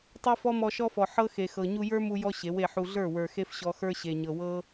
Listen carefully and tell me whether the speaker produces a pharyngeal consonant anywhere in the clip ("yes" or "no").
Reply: yes